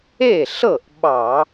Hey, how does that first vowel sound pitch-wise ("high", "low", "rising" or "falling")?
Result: falling